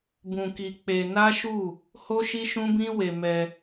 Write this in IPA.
b ũ˧ k i˧ k͡p e˧ n a˦ ʃ u˦˨ | h o˦ ʃ i˦ ʃ ũ˦ b ĩ˦ w e˧ m ɛ˧

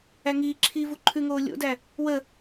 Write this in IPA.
æ ŋ iː ǁʰ iː v u ǃʰ ʉ ŋ oː lʲ o̰ d æ | w ə

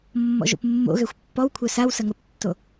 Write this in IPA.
mː ɔ̰ ʒ o̰ p mː o̰ ɣ ɛ xʷ pː ɔ w kʷʰ œ s a w s ɐ ŋ ə p tː o

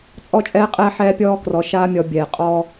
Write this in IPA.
t͡sʼ ɔ˦˨ t͡ʃʼ ɛː˦ qʼ ɛː˦ ħ ɛː˦ pʲ ɔː˦ k r ɔ˨ ʃ aː˦ mʲ ɔ˨ bʲ ɛː˨ qʼ ɔː˦

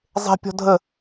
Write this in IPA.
zˤ e̤ pʲ ɔ̤ dʱ ə

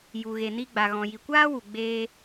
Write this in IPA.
j u˨ ɣ e˨ n i˧ ɡ͡b a˨ ɣ ɔ̃˨ j i˨ kʷ aː˦ w u˨ ɡ͡b eː˧

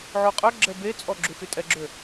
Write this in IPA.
ʕ o qʼ œ ɡ͡ǁ ɛ b e t͡sʼ ɔ ɡ͡ǁ u x y tʼ ɛ ɡ͡ǁ ø

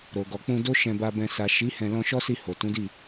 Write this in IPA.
ɾ o˨ ɡ ɔ˨ k͡p ũ˧ d o˦ ʃ ɛ̃˧ b a˧ b ɛ̃˧ s a˨ ʃ i˨˦ h ɛ̃˧ l ɔ̃˧ ʃ ɔ˦ s i˧ h o˨ t ũ˨˦ d i˦˨

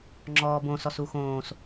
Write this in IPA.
ŋ͡ǁ ɔː b õ s ɔ s u x õː s

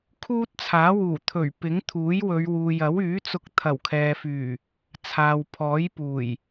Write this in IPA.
kʰ uː˥ t̚ t͡sʰ aː˨˥ w uː˨˩ t̪ʰ ɵ˨˩ ɥ p ɪ˨˥ ŋ t̪ʰ uː˨˥ j w ɵ˨˧ ɥ w uː˨ j ɐ˨˥ w yː˨˥ t͡s ʊ˧ k̚ t̪ʰ ɐ˨˩ w kʰ ɛː˨ f yː˨˩ | t͡sʰ aː˨ w pʰ ɔː˨˥ j p uː˨˩ j

